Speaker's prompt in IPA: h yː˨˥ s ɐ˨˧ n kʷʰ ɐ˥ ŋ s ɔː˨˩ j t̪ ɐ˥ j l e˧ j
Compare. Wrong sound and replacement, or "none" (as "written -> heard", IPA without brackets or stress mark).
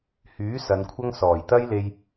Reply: none